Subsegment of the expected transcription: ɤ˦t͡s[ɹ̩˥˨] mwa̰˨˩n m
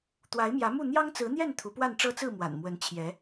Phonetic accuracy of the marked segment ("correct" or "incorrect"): correct